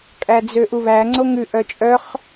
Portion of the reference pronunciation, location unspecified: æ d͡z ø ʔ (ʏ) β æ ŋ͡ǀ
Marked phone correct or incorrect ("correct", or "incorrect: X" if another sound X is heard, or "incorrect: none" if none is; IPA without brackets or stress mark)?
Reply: incorrect: u